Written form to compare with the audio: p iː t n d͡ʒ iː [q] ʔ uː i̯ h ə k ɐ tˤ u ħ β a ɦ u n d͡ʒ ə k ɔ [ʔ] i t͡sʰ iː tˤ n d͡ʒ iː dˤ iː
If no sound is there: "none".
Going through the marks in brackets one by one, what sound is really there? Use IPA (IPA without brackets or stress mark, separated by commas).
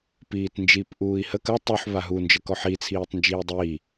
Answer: p, ħ